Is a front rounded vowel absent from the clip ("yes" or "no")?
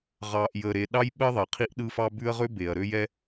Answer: no